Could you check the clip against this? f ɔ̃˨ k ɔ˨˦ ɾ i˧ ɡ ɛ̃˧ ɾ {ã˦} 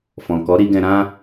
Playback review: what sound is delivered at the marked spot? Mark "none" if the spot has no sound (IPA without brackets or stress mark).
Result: ã˦